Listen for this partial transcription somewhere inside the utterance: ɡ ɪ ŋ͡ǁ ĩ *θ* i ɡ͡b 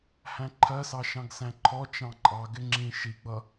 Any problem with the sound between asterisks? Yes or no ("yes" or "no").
yes